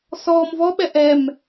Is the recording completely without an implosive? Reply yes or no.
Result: no